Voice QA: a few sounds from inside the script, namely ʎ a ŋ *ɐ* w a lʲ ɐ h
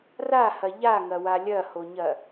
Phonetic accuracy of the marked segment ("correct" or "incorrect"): correct